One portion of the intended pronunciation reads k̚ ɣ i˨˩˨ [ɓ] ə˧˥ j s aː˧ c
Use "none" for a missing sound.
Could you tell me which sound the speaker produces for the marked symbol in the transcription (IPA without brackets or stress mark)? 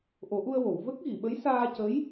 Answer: ɓ